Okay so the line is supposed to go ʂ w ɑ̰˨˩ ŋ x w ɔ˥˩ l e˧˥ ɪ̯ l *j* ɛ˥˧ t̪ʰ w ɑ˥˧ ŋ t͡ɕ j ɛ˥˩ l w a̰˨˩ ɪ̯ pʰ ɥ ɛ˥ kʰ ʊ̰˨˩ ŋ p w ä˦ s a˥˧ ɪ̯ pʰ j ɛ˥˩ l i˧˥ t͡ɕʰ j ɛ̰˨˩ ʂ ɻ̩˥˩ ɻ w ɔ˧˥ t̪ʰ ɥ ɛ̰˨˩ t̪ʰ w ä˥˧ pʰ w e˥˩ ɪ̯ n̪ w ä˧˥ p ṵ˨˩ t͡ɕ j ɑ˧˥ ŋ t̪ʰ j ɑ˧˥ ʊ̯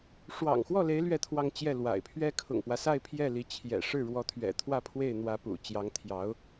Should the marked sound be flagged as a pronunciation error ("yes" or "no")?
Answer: yes